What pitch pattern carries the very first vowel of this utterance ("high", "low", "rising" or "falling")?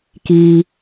low